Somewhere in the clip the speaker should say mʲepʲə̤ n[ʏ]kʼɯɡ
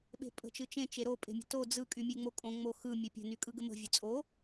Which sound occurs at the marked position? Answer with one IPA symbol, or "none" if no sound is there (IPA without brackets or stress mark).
y